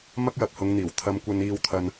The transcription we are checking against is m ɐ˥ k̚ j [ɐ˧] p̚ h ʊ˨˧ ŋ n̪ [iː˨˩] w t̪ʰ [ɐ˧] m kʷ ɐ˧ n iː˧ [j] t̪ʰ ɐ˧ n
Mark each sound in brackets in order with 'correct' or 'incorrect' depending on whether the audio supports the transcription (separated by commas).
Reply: correct, correct, correct, incorrect